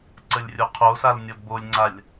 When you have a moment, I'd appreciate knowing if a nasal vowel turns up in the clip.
no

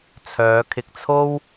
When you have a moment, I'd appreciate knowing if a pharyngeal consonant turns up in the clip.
no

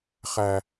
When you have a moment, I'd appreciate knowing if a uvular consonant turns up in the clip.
yes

